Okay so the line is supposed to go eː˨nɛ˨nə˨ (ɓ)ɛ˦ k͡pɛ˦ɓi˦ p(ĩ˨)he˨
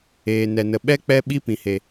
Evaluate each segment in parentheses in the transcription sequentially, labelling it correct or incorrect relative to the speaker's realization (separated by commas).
correct, correct